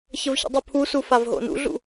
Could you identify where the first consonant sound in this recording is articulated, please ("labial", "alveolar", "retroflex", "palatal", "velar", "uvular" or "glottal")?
palatal